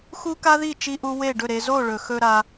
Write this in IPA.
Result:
xu˦ka˦ði˦˨ t͡ʃi˦ʔu˦ we˦˨ɖɵ˦˨ɾe˧ zo˦˨ɭɵ˨xɵ˧ ɾa˧

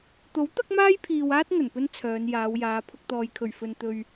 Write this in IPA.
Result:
t̪o˨˥w t̪ɐ˥k̚maː˥jpʰiː˨waː˥t̚ ŋɵ˨˩npɵ˥n t͡sʰœː˨˧njaː˨˧wjaː˨˧ pʰʊ˧k̚t̪ɔː˨jkʰɵ˨˩ɥ fɵ˧n t̪ɵ˧ɥ

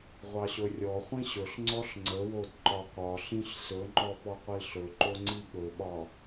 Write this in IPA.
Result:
ʁʷɑɕɵrʲɔχʷĩ ɕɵɬŋ͡ǀɔɬ ŋ͡ǀəwod ǃɒkɒɬĩɬ sɵŋ͡ǃɔ pɔqʷiɬɵǃo ŋ͡ǀiɠɵɓɒ

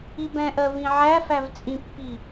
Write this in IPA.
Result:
ibɛ̃ʔɜ vĩʕæfæv t͡sʼĩpːi

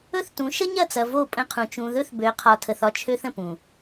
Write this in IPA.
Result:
ɵ˦θtũ˨˦ ʃə˦ɲɐ˦˨t͡sɐ˨ vo˦˨pʼə̃˦qʰũ˨ t͡ʃũ˨ðɵ˦θ bø˨˦qʰɒ˨tʰə˨θ ɒ˦t͡ʃʰø˦θə̃˨pũ˨

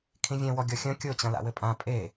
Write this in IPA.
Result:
kʰĩvʲɛ̃wɔ ɡʲɔxʲɐ̃ kʲot͡ɕɐ̃ la̰wɘpʼã pʼe

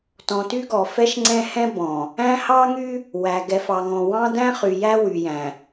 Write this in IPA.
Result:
tɔ̃˨ty˦ɡɔ˨ fɛ˦ʃŋ͡ǀɛ̃˦hɛ̃˦ bɔ̃˨ | æ̃˦hɑ˦ŋy˦ | wæ˨ɡɛ˨f ɑ˨ŋɔ̃˨wɑ̃˦ dæ̃˦χy˨jæ˦ wy˨jæ̃˨

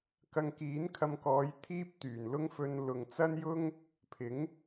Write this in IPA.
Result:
kɐ˧ŋkiː˨˥nkʰɐ˧mkɔː˨˧j t̪ʰiː˥p̚t̪yː˨˩nlʊ˥ŋfɵ˧n lʊ˨ŋt͡sɐ˥njʊ˥ŋ | pʰɪ˨˥ŋ

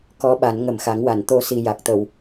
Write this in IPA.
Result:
kɔ˧˥ɓa˨˩˦n ŋə˨˩mxa˨˩˦ŋwa˨˩˨n t̪o˧ si˨˩ ja˨˩k̚t̪ə˨˩˨w

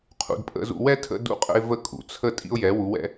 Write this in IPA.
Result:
qʰṵ˨dpʼə̰˦zṵ˦ wɛ˦tʰə̰˧ dṵ˦qʼə̰˦ɪ̯ və˦kʼṵ˨ t͡sʰə˦ tʼḭ˦ʊ̯jɛ˨˦wu˨˦wɛ̰˦

